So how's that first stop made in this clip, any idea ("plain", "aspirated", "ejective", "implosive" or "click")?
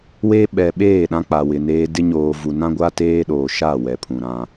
implosive